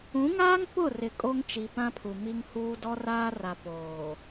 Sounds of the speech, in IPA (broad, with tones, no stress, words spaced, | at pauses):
ũ˨˦ŋaː˦ŋ pʊ˦˨rɪ˨ kʼo˦ŋt͡ʃi˨pã˦pʰu˨ mi˦ŋhuː˦ dɔ˦raː˦ra˨ poː˨